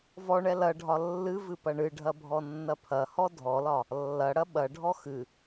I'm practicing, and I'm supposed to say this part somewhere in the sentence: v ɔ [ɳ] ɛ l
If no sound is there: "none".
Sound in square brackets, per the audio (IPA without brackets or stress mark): ɳ